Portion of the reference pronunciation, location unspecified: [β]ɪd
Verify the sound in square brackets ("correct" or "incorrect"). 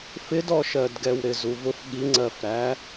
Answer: incorrect